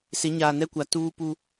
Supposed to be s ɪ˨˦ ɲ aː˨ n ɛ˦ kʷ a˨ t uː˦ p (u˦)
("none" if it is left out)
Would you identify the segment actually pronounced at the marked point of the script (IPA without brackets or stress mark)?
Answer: u˦